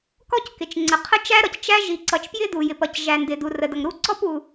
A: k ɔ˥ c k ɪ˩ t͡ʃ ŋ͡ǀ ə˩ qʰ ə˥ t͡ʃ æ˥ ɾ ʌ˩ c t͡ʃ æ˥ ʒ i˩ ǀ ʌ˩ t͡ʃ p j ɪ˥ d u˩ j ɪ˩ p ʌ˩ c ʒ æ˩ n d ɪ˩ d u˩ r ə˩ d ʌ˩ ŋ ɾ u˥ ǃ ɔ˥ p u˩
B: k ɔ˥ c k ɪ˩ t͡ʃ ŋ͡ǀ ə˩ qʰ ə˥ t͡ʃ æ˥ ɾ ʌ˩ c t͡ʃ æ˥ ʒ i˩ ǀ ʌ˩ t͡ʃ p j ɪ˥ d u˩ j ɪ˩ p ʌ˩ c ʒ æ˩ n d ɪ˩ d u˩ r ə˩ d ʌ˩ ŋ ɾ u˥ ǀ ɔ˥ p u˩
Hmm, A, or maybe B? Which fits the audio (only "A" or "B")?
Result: B